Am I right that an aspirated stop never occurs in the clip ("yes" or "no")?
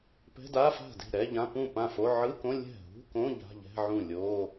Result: yes